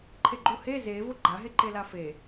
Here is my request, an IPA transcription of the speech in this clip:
ǃʰ e ɡ͡ǃ u h e z e v ʊ ɡ͡ǃ a ɦ e ǃ e l a f e

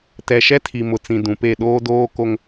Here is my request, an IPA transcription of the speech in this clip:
t ɛ˨ ʃ ɛ˦ tʰ i˨ m ʊ˨ t͡s ĩ˨ d ũ˨ p e˦˨ ɗ oː˦ d oː˦ k o˦ ŋ

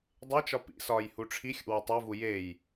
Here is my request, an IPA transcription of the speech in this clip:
dˤ e t͡ʃ ɒ p ḭ s ɒː j h u ʈ͡ʂʰ i xʲ ṵ w ɒ tˤ o v u j e j

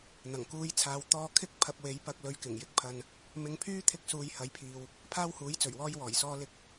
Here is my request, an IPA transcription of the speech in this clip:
n̪ ɐ˨˩ ŋ k uː˧ j t͡sʰ aː˨˧ w t̪ ɔː˧ kʰ ɪ˥ k̚ pʰ ɐ˧ p̚ w e˨˥ j p ɐ˧ k̚ l ɵ˧ ɥ k ɪ˨˩ ŋ j ɪ˧ k̚ pʰ ɐ˧ n | m ɪ˨˧ ŋ pʰ yː˥ t̪ʰ ɪ˧ k̚ s uː˧ j h ɐ˨˥ j pʰ iː˨ w | pʰ aː˥ w h uː˨˥ j t͡s ɵ˨˩ ɥ w ɔː˧ j w ɔː˨˩ j s ɔː˧ l ɪ˧ k̚

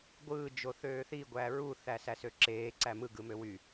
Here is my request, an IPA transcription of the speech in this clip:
ɡʷ ɯː d͡ʒ o θ øː θ i ɡʷ æ ɹ u θ æ s æ s ø ǁ eː ǀ æ m ɯ ɡ ɯ m ø w y

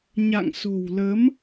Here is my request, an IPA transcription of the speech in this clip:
ɲ a̰˧˨ ŋ s o̤˨˩ w l ə˨˦ m

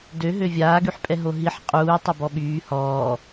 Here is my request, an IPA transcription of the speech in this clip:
d ø ɦ ø vʲ aː ɡ y ħ pʼ ɛ ɦ o ɦ i ħ qʼ uː tˤ ø b ɔ ɓ yː h ɔː

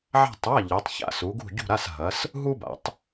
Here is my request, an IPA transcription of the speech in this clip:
ʕ a̤˥˧ tˤ a˧˥˧ ʎ ɛ˨˦ tˤ ç a̰˥˧ s u˨˦ ɡ ṳ˥˧ ɟ ṳ˥˧ ɾ a˧˥˧ s ɦ ɐ˨˦ s | ɦ u˥ b a̰˨˦ tˤ

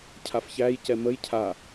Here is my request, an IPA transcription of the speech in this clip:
cʰ a f ç æ j c ɛ m ə j cʰ a

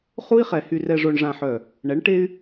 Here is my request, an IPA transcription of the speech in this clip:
χ u˦ i̯ χ ɛ˨ h y˨ r ɛ˨ ʐ o˨ ɳ ʐ ã˨ ħ œ˨ | ɳ ɛ˨˦ ɳ ʈ e˦ y̯

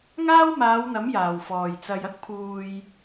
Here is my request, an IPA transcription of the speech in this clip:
ŋ aː˥ w m aː˨˧ w n̪ ɐ˨˥ m j aː˨˩ w f ɔː˨˩ j t͡s ɐ˨ j ɐ˥ k̚ pʰ uː˨ j

